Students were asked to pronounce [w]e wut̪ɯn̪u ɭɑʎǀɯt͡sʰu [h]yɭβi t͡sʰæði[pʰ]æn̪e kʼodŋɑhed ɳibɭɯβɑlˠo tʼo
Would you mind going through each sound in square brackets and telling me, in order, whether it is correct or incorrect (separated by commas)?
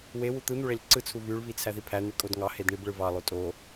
correct, incorrect, correct